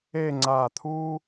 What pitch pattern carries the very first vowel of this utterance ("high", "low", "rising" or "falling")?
falling